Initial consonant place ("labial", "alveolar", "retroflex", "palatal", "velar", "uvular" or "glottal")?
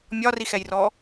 labial